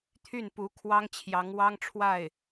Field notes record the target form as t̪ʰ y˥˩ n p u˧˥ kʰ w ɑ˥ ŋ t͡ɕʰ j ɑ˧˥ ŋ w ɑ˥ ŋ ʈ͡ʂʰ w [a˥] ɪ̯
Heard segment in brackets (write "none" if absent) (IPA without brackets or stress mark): a˥˩